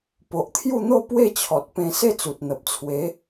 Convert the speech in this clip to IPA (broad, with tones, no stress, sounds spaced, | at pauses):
p o˨ ʔ t̪ʰ j u˥˧ n̪ o˥˧ p w e˥˧ t͡ɕʰ ɔ˨ t̚ p ẽ˧ s e˥˧ t͡s u˨ t̚ n̪ ə˨ p̚ t͡sʰ w e˨˦